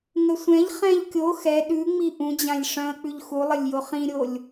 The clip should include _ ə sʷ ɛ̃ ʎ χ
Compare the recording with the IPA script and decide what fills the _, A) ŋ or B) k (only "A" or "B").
A